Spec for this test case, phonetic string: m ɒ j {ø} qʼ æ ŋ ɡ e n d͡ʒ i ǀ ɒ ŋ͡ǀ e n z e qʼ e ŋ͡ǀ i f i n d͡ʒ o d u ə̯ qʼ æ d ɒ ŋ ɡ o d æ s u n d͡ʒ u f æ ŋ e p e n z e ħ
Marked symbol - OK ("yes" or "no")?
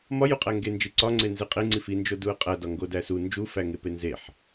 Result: no